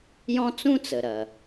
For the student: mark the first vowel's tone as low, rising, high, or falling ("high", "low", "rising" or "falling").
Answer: high